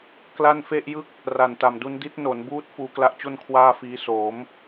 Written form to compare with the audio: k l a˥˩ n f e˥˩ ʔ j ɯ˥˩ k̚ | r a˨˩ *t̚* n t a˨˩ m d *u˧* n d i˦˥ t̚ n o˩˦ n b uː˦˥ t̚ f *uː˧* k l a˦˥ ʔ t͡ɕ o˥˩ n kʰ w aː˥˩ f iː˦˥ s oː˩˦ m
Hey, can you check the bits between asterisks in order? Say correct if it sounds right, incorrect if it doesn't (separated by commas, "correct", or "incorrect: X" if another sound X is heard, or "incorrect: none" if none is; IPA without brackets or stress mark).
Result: incorrect: none, correct, correct